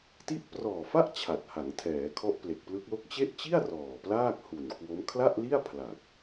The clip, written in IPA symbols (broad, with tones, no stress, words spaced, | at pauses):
ti˦˥ʔprɔː˨˩fa˥˩ʔ t͡ɕʰa˨˩t̚ha˩˦ŋtʰɛː˩˦ kʰɔ˦˥ʔple˨˩k̚plɯ˦˥k̚lo˥˩k̚ t͡ɕe˥˩ʔ t͡ɕi˥˩a̯ rɔː˨˩plaː˥˩k̚hu˨˩n kwo˦˥m kʰla˥˩ʔli˥˩a̯pʰla˨˩k̚